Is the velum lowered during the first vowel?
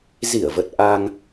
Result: no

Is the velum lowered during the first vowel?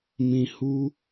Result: yes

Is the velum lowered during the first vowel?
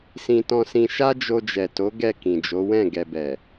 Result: yes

